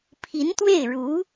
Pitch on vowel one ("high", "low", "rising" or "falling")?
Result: rising